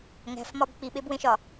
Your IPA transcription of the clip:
ŋ æ̤ f m ɒ b k͡p i ɓ e b w ẽ ʃ ɒ

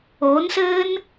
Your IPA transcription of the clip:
o n s ɘː n

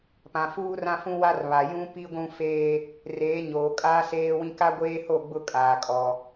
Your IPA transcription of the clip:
p ã˨ f uː˦ r ã˦ f ũ˦ w a˦ r β a˨ j ũ˦ p i˦ ɡʷ ũ˦ f eː˦ | r eː˨˦ ɲ oː˨ kʼ aː˦ s eː˦ w ĩ˦ k a˦ ɡʷ eː˦ h o˦˨ ɡ͡b ʊ˦˨ kʼ aː˨ kʼ ɔ˨

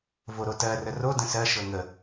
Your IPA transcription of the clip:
v o ɾ o t ɜ r ə r o d ə̃ s ɜ ʃ ɤ ŋ ə

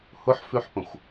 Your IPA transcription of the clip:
h ʊ ħ f ʉ ħ p ə̃ xʷ

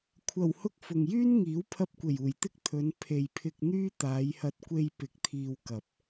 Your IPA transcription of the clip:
kʷʰ ɐ˨˩ w h ʊ˧ k̚ f ʊ˨ ŋ j yː˥ n ŋ iː˨˥ w pʰ ɐ˧ p̚ kʷ e˨˩ j uː˨˩ j t̪ ɪ˥ k̚ t̪ʰ ɵ˨˧ n pʰ e˨ j pʰ ɪ˧ k̚ n̪ yː˥ t̪ aː˨˧ j h ɐ˧ t̚ kʷ e˧ j p ɪ˨˥ k̚ t̪ʰ iː˧ w k ɐ˨ p̚

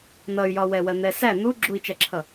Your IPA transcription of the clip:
n ʌ y̯ j ɒ w ɛ w ɜ n̪ ɛ s æ n̪ u ɡ͡ǁ u i̯ t͡ʃ æ ǁʰ ʌ

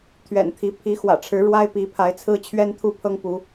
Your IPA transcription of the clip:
t̪ʰ ɥ ɛ̰˨˩ n t̪ʰ i˨˦ pʰ i˨˦ x w ä̰˨˩ ʈ͡ʂʰ ɻ̩˨˦ ɻ w a˦ ɪ̯ p i˨˦ pʰ a˨˦ ɪ̯ t͡sʰ ɹ̩˦ t͡ɕʰ ɥ ɛ˦ n t̪ʰ u˥˨ pʰ ɤ˦ ŋ p u˨˦

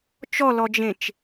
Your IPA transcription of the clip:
t͡ʃ ɔ l ɔ d͡ʒ ẽ t͡ʃ

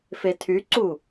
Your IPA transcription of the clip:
f e tʰ y ǀ u

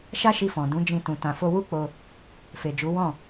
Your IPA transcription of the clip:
ʃ a˦ ʃ i˧ f ɔ̃˨ d ũ˨˦ d͡ʒ ĩ˧ t ũ˨ t ã˨ f o˧ w u˦ k͡p o˧ | f e˨ d͡ʒ u˨˦ w ɔ̃˦˨

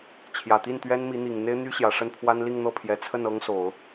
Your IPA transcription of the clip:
t͡ɕʰ j ä˨˩ t̪ i˥˩ n t̪ ɥ ɛ˥ n m i˧˥ n̪ i˨˩ ŋ n̪ e˥ ɪ̯ n̪ y˥ ɕ j ä˨˩ ʂ ə˥˩ n pʰ w a˥ n l i˥˧ ŋ n̪ ɤ˥˩ pʰ j ɛ˨˩ t͡sʰ ə˥˩ n ɤ˥ ŋ s o˨˩˦ ʊ̯

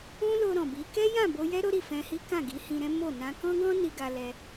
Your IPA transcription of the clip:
ũ˦ l o˧ ɾ ɔ̃˨ b i˨˦ k ɛ˦ j ã˦˨ b o˧ j ɛ˦ ɾ o˦ ɾ i˦˨ f ɛ̃˧ h i˦ k ã˦˨ ɡ i˨˦ h ĩ˧ ɾ ɛ̃˦ m o˦˨ n ã˧ k ɔ̃˦ ɡ ɔ̃˦ n i˧ ɡ a˧ l ɛ˦

